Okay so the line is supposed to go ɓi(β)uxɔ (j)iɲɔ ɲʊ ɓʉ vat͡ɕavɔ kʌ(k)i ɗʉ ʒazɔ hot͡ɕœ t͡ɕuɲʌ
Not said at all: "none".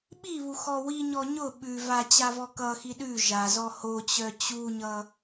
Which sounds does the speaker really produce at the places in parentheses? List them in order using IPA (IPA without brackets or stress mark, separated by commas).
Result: β, w, x